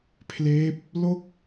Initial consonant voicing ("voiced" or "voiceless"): voiceless